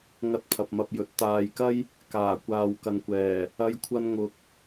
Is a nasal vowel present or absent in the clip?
absent